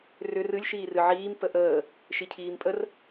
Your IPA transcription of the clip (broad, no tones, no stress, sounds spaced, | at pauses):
r ʏ r ɨ lʲ ʃ iː r ɨ ʕ iː m p ə ʔ əː | ʃ i cʰ iː m pʼ ə r